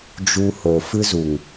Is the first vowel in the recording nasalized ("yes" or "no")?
no